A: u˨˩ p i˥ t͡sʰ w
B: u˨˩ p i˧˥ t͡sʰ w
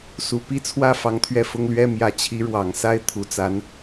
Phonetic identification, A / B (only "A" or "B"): A